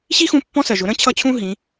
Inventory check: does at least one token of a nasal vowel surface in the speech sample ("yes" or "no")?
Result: yes